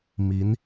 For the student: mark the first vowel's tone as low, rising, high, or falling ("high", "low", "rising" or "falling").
rising